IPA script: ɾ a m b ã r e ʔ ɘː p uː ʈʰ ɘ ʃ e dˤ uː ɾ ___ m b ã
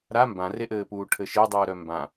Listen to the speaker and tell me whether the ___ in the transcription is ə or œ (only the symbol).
œ